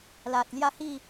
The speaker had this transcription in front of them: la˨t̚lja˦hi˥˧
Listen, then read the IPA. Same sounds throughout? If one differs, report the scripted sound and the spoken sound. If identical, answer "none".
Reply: none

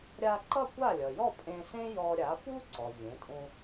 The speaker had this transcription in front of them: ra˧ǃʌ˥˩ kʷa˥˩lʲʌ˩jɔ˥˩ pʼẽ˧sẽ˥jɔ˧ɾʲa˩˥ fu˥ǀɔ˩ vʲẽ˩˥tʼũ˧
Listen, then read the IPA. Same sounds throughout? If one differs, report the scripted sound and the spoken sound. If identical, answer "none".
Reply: r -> ɾʲ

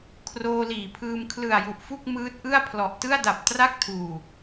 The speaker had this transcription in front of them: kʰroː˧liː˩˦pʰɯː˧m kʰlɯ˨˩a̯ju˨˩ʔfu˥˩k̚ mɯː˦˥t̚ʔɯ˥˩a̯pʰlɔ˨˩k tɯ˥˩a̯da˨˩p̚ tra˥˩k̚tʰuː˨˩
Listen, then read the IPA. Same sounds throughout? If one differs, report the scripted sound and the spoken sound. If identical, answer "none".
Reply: k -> ʔ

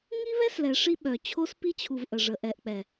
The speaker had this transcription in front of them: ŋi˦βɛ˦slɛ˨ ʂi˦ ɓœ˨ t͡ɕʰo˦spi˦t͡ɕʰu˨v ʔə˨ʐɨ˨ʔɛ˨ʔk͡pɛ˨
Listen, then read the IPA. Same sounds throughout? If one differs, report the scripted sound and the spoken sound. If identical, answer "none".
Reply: ɨ˨ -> ə˨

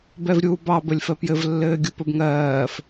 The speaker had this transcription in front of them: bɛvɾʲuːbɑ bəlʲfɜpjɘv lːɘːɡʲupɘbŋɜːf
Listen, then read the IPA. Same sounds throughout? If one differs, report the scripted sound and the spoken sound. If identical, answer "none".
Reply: none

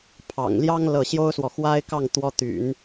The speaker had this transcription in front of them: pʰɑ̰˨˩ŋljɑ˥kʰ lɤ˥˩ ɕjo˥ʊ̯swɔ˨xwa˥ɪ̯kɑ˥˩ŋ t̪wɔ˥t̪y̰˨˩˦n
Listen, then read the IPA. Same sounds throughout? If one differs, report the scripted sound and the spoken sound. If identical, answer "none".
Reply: kʰ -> ŋ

